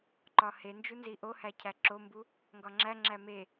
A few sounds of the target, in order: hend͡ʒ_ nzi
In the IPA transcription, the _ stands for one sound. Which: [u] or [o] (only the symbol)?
u